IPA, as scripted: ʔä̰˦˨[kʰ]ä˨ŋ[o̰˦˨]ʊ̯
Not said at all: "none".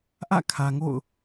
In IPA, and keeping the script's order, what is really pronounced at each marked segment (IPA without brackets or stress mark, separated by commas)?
kʰ, o̰˦˨